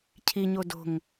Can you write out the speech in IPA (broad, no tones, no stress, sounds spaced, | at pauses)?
cʰ i ɲ o d o̤ ŋ